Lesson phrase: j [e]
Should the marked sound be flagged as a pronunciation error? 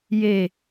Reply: no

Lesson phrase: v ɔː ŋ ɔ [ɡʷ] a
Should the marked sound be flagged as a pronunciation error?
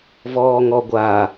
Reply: no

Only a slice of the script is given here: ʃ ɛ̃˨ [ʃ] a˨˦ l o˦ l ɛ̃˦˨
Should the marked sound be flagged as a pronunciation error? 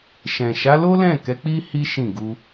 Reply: no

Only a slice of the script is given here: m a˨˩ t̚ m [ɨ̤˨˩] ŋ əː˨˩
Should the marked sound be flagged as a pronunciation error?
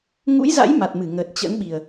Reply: yes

